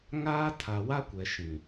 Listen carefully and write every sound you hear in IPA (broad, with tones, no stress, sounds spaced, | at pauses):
ŋ aː˦ tʰ a˨ w a˦ kʷ ɛ˨ ʃ ĩ˨